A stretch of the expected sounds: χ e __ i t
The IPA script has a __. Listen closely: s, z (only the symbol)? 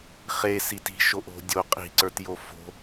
s